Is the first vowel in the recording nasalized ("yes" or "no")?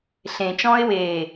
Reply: yes